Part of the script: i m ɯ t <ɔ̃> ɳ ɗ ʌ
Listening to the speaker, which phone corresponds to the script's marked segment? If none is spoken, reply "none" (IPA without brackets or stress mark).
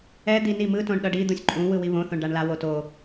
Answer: õ